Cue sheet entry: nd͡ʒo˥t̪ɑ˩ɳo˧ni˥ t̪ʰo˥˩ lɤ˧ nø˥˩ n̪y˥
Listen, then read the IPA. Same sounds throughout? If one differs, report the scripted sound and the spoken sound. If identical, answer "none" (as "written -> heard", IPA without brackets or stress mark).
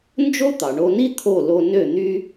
ɤ˧ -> o˧